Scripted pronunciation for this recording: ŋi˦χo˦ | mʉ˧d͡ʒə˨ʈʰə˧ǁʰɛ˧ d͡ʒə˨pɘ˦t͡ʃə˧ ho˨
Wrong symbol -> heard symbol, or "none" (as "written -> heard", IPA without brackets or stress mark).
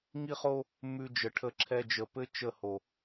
none